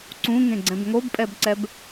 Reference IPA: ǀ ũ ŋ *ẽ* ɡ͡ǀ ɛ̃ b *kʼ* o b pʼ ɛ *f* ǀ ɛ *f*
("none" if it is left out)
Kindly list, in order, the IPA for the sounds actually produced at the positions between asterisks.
ẽ, ŋ, b, b

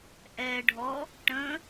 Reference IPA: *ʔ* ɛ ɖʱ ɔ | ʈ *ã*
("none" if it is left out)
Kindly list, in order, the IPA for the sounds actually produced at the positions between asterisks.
ʔ, ə̃

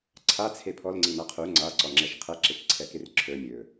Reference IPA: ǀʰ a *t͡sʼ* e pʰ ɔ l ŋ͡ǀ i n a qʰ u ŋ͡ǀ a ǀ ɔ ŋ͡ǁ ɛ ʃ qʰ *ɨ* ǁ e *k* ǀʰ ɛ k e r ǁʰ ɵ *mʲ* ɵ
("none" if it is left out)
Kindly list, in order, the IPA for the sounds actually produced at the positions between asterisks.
t͡sʰ, ɛ, k, mʲ

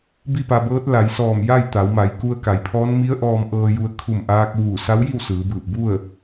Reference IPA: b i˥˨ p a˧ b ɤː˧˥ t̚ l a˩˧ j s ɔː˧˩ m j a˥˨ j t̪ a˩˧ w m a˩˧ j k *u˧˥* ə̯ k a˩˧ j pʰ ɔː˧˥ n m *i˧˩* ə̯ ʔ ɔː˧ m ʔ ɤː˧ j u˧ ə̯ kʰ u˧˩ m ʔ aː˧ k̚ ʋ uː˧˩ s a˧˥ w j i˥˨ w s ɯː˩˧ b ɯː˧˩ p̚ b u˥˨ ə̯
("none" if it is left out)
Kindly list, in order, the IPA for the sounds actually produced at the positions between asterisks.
u˧, i˧˥

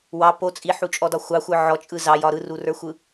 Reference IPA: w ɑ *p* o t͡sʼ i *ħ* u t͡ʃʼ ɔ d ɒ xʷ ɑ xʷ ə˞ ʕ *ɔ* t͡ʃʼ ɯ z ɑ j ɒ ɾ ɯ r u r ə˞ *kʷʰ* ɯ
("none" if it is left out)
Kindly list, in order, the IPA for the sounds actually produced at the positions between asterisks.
p, ħ, ɔ, xʷ

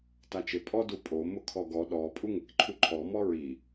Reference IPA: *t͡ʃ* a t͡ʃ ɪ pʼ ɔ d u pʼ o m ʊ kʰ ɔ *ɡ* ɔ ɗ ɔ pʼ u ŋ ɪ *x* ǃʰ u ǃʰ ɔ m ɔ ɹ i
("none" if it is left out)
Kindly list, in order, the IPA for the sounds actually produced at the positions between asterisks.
t, ɡ, k

